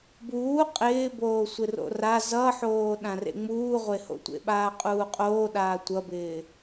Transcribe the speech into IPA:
buː qʼɪːboːsʷɪ ro̰ra zʌħoːɗãrḛ ŋ͡muːʁʷeho̰tʷḛ ɓaːqʼuːqʼoːɗaː tʷʌbɪː

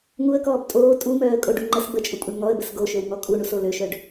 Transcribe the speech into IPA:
ŋuə̯kɔːb tʼoː tʼumœːə̯kʼoɖu ŋ͡ǃəs bət͡ʃʼukʷʼœɳ ŋɔə̯bəs ɡoʃøwŋɔ kʼuɳuso løʃœɖ

